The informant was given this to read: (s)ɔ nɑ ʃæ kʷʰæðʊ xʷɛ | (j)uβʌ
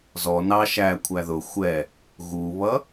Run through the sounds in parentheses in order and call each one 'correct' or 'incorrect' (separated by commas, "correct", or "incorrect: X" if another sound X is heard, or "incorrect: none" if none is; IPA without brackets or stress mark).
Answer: incorrect: z, incorrect: ɣ